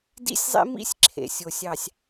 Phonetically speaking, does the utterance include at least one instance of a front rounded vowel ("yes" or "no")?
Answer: no